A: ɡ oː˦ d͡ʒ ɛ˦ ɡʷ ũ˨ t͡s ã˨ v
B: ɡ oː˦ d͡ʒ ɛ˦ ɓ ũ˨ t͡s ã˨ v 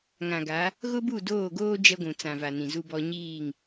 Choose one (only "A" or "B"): A